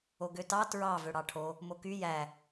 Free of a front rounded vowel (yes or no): no